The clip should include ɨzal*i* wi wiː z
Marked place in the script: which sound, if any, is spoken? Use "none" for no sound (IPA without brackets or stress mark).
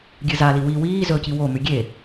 i